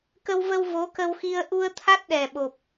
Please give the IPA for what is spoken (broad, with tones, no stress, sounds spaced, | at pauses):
k ə˧ w v ə˧ w v o˨˦ k ə˧ w x i˧ ə̯ ʔ u˧ ə̯ t̪ʰ a˦˥ t̚ ɗ ɛ˨˩ ɓ o˨˩ p̚